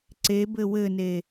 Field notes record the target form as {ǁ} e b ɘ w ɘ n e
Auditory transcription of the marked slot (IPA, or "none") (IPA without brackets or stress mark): ǀ